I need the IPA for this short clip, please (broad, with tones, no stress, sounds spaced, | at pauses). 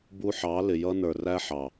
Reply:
b u˧ ħ ɑ˨˦ l ɪ˨ j ʌ˧ n ə˞˨ r æ˦ ħ ɑ˨